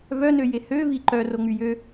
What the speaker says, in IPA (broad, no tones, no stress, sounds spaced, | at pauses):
v œ n ø j e h ø v i ǃ œ r o ŋ͡m y j ø